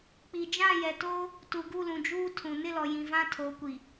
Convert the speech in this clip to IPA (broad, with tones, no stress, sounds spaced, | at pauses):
k͡p i˨ d͡ʒ ã˦˨ j ɛ˨ t o˦ | t u˨ ɡ u˦˨ l ũ˨ d͡ʒ uː˦ tʰ ũ˨ n ɪ˦˨ l ɔ˨ j ĩ˨ v ã˦ tʰ o˨˦ kʷ i˨